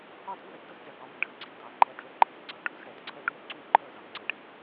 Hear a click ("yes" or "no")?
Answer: yes